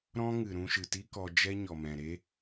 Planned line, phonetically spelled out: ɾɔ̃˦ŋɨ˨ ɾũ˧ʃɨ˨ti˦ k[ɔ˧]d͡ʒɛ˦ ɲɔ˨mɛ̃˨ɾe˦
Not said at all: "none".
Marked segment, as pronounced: ɔ˧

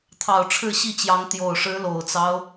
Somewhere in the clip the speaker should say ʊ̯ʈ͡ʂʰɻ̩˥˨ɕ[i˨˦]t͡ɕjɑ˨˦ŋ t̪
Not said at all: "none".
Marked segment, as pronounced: i˥˨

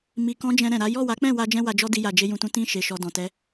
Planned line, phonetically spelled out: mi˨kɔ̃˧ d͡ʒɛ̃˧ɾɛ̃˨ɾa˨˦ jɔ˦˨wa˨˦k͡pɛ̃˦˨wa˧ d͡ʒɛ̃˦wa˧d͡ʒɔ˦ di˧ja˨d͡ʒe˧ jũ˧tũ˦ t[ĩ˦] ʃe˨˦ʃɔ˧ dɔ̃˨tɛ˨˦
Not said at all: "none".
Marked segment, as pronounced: ĩ˦˨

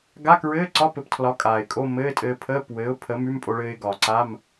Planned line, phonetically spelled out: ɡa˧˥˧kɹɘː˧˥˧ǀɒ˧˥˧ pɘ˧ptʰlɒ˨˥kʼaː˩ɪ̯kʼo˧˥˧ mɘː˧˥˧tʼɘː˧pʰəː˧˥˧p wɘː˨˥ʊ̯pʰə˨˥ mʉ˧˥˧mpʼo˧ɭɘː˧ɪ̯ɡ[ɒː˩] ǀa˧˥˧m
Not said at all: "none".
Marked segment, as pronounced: ɒː˩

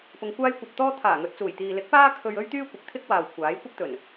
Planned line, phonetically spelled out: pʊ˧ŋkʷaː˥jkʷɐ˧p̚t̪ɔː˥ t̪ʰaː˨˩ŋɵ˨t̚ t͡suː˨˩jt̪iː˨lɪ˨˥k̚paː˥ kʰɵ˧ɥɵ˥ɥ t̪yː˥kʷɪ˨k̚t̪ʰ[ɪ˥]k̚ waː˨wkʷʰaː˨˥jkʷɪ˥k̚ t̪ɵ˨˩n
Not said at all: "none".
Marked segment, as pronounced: ɪ˥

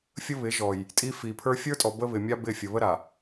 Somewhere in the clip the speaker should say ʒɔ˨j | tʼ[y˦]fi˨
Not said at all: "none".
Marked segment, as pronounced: i˦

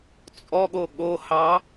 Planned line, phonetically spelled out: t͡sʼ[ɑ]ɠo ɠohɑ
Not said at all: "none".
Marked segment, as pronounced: ɔ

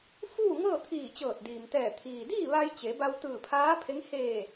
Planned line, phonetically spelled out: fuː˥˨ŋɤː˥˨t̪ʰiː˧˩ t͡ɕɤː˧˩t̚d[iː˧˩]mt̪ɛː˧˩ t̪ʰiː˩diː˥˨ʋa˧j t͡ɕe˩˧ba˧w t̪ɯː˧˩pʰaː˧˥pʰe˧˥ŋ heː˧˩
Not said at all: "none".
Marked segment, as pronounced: iː˩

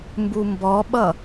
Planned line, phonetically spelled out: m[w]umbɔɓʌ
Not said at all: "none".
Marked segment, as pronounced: b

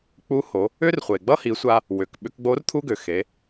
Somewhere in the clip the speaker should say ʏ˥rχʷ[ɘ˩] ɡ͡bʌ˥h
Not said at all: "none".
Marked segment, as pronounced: e˩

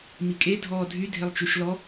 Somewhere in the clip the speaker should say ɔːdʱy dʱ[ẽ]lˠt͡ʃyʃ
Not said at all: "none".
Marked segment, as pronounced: e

